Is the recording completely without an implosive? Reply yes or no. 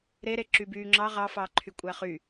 yes